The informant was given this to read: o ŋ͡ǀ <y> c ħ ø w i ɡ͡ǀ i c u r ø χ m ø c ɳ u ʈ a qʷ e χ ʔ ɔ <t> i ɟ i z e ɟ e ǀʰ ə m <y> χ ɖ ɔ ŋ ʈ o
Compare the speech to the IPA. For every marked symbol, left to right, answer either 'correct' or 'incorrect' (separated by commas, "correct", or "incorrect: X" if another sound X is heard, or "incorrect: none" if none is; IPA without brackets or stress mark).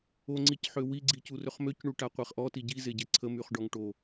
incorrect: i, correct, correct